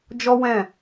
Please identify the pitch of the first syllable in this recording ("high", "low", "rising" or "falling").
high